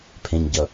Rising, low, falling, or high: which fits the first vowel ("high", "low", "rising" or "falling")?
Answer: low